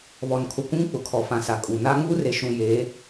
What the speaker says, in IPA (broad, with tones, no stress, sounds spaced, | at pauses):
β ɔ˨ n kʰ ʊ˨ kʷ ũ˦ ŋ k͡p ʊ˨ kʰ ɔ˨ f ã˨ s a˨ kʼ u˨ n a˦ ŋ uː˦ r e˨ ʃ ũ˨ j e˨˦